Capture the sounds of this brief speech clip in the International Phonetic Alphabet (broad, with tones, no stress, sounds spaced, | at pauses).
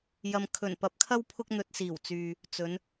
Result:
j ɐ˨ m kʰ ɵ˨˩ n p ɐ˨˥ p̚ kʰ ɐ˥ w pʰ ʊ˧ k̚ n̪ ɵ˨ t̚ s iː˨˩ w t͡s yː˨ | t͡s ɵ˨˧ n